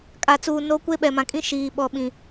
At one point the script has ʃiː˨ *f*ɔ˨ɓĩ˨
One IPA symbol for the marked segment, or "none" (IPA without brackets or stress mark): ɓ